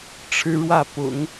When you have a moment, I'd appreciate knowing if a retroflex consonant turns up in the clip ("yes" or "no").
yes